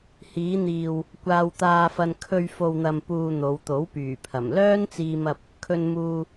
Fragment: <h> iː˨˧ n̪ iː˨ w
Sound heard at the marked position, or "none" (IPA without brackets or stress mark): h